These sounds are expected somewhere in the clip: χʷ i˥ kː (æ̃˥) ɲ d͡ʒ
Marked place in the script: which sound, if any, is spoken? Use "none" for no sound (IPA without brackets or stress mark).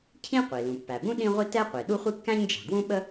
æ̃˥